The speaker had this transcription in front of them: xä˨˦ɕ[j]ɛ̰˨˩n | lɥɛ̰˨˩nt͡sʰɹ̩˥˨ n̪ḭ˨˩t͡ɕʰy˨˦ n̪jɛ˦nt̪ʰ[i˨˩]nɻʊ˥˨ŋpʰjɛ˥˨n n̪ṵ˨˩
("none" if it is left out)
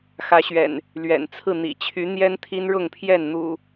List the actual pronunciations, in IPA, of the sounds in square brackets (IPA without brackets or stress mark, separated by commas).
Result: ɥ, i˦